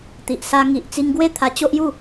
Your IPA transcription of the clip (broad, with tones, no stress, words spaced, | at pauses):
t̪i˨ʔsa˧ ŋi˨ʔt͡si˧ŋ ɡwe˦t̪ʰa˧t͡ɕo˦ʔju˥˧